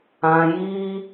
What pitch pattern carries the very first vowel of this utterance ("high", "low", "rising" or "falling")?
low